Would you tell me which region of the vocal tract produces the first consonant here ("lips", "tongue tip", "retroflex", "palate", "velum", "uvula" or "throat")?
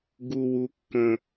velum